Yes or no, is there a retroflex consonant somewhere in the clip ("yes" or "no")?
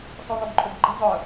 no